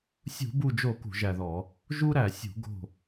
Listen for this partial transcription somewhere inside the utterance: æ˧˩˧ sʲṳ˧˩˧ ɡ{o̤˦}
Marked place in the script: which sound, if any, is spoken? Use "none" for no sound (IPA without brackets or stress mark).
o̤˧˩